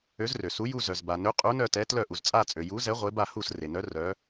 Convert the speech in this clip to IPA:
ø˨˥ z r ø˩ s u˨˥ j u˦˨ z œ˩ z b a˩ n ø˨˥ qʼ u˨˥ n œ˦˨ t ɛ˨˥ t l œ˦˨ ʔ u˩ z t͡sʼ a˦˨ t͡sʼ ø˩ j u˨˥ z ɛ˨˥ ʁʷ e˨˥ b a˦˨ h u˦˨ s r e˩ n œ˨˥ r œ˨˥

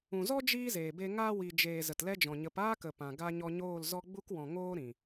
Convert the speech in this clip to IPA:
ũ˨ z ɔ˦ d͡ʒ iː˦ z eː˨ b e˧ ŋ aː˧ w i˨ d͡ʒ eː˨ z ə˨ t l ɛ˦ d͡ʒ ɔ̃˨ ɲ ə˨˦ p aː˦ k ə˨ p ã˨ ɡ a˦ ɲ ɔ˧ ɲ oː˦˨ l z ɔ˧ ɡ͡b u˧ k w ɔ̃˨ ŋ oː˦ ɾ ĩ˨

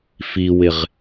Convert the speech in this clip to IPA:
f i w ɪ ʁ

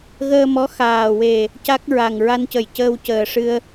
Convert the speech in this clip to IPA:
ɣ əː˧ m ɔ˧˥ x aː˨˩ w e˨˩ | c a˦˥ k̚ ɹ a˨˩ ŋ ɹ a˧ n c ə˨˩ j c əː˧ w c əː˨˩ ʂ ɨ˧ ə̯

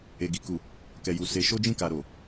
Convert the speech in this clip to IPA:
e˨ ɡ i˨ k u˨ | k ɛ˨ j u˨ s e˨˦ ʃ o˦ d͡ʒ ĩ˦˨ k a˨ ɾ o˨

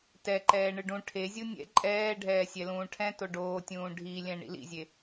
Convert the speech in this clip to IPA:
t ɛ ǃ ɛː ɳ ɯ ɖ ũ ʈʰ e zʲ u nʲ ɛ̰ ǃʼ ɛː ɖʱ ɛː sʲ ɛ l ũː ʈʰ ɛ̃ t o ɖ oː tʲ ũː ɖʱ i lʲ ɛ̃ ɳ ḭ l ḭ zʲ e

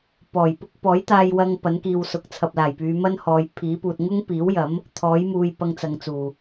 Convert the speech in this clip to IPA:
p ɔː˨˩ j p ʊ˥ k̚ p ɔː˨˥ j t̪ aː˧ j w ɐ˧ ŋ p ɐ˨˥ n k iː˨ w s ʊ˨ k̚ t͡sʰ ɐ˨ p̚ l aː˨˩ j p yː˨˧ m ɐ˥ n h ɔː˨˧ j pʰ iː˨˥ p uː˨ t̚ ŋ ʊ˥ ŋ p iː˨˥ w j ɐ˨˥ m | t̪ʰ ɔː˨˥ j m uː˧ j p ɐ˧ ŋ t͡s ɐ˨ ŋ t͡s uː˨˩

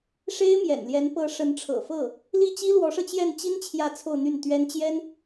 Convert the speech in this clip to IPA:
ʂ e˥ ɪ̯ m j ɛ̰˨˩ n l j ɛ˧˥ n p ɤ˧˥ ʂ ə˧˥ n ʈ͡ʂʰ ɤ̰˨˩ f ɤ˥˩ | l i˥˩ t͡ɕ i˥ l w ɔ˧˥ ʂ ɤ˧ t͡ɕ j ɛ˥˩ n t͡ɕ i˥ n t͡ɕʰ j ä˥˧ t͡sʰ o˥˧ ʊ̯ n̪ y˥˩ n t̪ ɥ ɛ˥ n t͡ɕ j ɛ˥ n

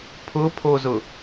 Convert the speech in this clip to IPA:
pʰ ʊ pʰ o z ʊ

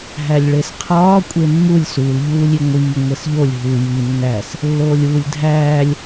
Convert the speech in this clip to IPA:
ɦ æ lʲ ɭ e s qʰ ɒː kʷʼ e mː u lʲ s u l ʎ uː lʲ i ŋʷ iː ŋʷ e s ʎ o lʲ ɦ u j i nː æ s | lː oː lʲ uː lʲ dʱ æː lʲ

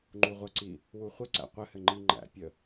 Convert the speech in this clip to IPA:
ŋ͡ǃ u ʁʷ ə ǀ i | w u χʷ ɪ ǀ æ̰ qʷ ɘ h ɘ ŋ͡ǃ i ŋ͡ǃ æ̰ pʲ ə

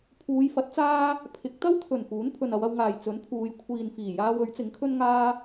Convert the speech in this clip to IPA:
pʰ uː˨˧ j f ɐ˨˥ t̚ t͡s aː˥ | pʰ ɪ˨˥ k̚ t̪ ɐ˥ w t̪ʰ ɵ˨˩ n f uː˨˥ n pʰ ɵ˨ n ɐ˨˧ w ɐ˧ w ŋ aː˨˩ j t͡s ɵ˨˥ n pʰ uː˨˧ j kʷʰ iː˨ n f iː˨˩ j aː˧ w ɵ˨˥ ɥ t͡s ɪ˨˥ ŋ kʰ ɵ˥ n ŋ aː˥

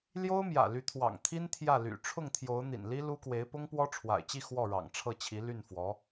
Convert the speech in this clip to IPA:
l j o˥ ʊ̯ m j ä̰˨˩ l y˧˥ t̪ʰ w ɑ̰˨˩ ŋ t̪ʰ i˥ n t̪ʰ j ä˥˩ l y̰˨˩ ʈ͡ʂʰ ʊ˥˩ ŋ t̪ʰ j o˧˥ ʊ̯ n̪ ḭ˨˩ n l i˥ l u˥ k w e˧˥ ɪ̯ p ʊ˥ ŋ p w ɔ˥ ʈ͡ʂʰ w a̰˨˩ ɪ̯ t͡ɕ i˥˧ x w ɔ˥˩ ɻ ɑ̰˨˩ ŋ ʈ͡ʂʰ ɤ˥˩ t͡ɕʰ i˧˥ l y˥˩ n f w ɔ˧˥

